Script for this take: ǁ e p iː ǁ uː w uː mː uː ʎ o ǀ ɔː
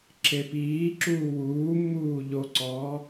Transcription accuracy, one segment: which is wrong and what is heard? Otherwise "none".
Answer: none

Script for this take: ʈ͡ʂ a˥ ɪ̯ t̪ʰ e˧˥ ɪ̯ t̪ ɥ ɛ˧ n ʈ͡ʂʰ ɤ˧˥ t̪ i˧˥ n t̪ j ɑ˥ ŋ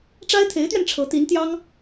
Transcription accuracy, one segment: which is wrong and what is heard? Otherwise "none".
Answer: none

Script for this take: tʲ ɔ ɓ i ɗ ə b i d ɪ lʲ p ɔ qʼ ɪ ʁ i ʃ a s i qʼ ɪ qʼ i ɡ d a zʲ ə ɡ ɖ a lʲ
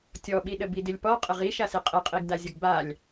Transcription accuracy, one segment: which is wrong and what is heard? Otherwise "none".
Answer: ɖ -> b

